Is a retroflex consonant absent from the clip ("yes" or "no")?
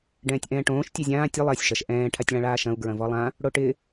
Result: no